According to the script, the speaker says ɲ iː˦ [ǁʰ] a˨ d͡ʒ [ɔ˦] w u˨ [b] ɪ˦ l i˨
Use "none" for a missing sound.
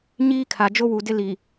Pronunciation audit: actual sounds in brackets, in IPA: kʰ, o˦, d

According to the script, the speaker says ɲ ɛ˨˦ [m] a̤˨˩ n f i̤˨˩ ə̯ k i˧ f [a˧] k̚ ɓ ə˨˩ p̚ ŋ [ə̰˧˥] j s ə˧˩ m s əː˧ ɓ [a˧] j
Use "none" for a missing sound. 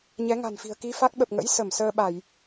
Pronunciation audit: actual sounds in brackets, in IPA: ŋ, a˦˥, ə̰˧˥, a˧˩˨

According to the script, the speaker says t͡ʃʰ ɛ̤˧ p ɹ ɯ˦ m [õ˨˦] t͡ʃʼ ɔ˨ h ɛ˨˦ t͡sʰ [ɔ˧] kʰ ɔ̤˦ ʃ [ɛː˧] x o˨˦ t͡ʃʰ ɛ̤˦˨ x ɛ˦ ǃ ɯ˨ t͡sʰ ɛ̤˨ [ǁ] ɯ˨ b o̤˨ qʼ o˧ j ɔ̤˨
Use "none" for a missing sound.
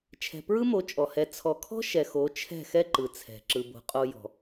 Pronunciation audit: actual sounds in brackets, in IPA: o˨˦, ɔ˧, ɛ˧, ǁ

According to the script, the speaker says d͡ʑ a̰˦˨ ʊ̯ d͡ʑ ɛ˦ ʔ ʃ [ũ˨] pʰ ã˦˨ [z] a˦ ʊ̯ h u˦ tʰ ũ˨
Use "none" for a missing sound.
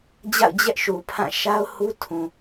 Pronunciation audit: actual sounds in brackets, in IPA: u˨, ʃ

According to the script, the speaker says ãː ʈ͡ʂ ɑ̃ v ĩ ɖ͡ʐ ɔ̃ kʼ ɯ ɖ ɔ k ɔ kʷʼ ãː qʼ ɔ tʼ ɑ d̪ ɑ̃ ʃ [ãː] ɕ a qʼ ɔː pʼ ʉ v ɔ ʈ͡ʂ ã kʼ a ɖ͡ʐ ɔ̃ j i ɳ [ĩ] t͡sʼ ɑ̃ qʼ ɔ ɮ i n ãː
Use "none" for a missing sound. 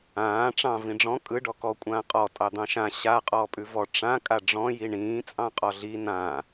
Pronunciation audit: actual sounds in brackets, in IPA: ã, ĩː

